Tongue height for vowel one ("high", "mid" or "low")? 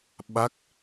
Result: low